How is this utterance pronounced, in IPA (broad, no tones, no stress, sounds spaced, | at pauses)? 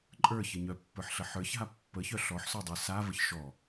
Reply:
ǃʼ ə˞ ç ə ɲ œ pː ə˞ ħ ɬ ə ħ ə˞ ç ɦ a pː ə ç œ ɬ ɔ ħ s œ dˤ ə˞ s a v ə ç ʃ ɔ